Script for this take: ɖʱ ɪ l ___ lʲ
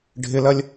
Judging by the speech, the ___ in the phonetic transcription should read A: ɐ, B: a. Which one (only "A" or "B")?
A